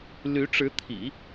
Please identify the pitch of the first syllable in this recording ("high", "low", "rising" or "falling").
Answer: rising